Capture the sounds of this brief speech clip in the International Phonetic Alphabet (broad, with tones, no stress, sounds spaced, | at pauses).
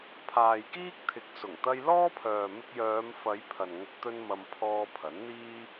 pʰ aː˨ j k iː˥ k̚ t̪ʰ ɪ˨˥ k̚ s ʊ˨˩ ŋ t̪ ɐ˧ j l ɔː˥ pʰ œː˨ m ɪ˥ k̚ j œː˨˧ m f ɐ˨˧ j pʰ ɐ˨ n ŋ ʊ˧ k̚ t̪ ɵ˥ n m ɐ˧ m pʰ ɔː˧ pʰ ɐ˨˥ n n̪ iː˥